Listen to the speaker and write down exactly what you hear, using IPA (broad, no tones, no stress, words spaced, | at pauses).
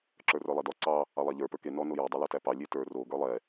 ǁə˞rə˞lˠɛdɔ ǀɑ | ɑlˠɑʎə˞ pə˞ke nɔ nojə˞ dˤolɔtæpɑ lʲetə˞ ro ɡə˞lˠɛ